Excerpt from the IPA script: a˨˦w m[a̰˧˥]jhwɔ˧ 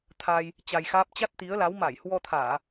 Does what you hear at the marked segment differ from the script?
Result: yes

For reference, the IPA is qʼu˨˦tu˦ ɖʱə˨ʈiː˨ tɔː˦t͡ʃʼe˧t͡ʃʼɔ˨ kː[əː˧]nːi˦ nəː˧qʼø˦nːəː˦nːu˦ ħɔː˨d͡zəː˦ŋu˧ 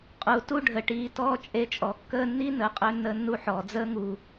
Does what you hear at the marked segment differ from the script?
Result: no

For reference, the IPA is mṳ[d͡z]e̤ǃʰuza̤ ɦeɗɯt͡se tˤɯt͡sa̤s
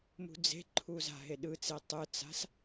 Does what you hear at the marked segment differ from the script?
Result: no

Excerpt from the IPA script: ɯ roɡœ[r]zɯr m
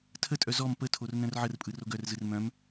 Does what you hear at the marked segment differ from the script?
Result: no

